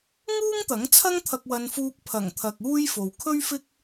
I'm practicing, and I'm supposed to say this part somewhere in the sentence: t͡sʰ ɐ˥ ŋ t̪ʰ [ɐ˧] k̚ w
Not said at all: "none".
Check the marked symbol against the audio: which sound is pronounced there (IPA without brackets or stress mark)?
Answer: ɐ˧